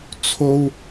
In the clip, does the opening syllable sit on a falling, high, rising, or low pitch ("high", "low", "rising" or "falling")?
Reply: high